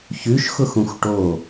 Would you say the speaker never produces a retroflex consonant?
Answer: no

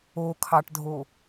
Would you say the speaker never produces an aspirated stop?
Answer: no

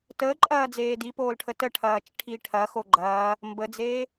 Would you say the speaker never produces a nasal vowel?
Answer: yes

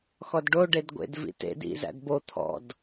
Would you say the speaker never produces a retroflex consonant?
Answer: no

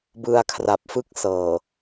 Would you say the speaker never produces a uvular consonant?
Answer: yes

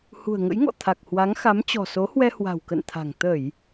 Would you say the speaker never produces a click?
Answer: yes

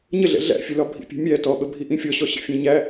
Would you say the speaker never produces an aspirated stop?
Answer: yes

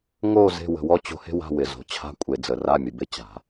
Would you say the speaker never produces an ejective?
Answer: no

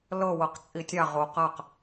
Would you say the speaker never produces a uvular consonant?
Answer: no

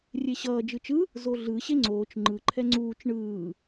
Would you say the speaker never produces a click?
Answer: no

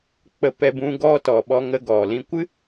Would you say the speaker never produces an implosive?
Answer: no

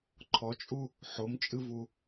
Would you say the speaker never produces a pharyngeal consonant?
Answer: no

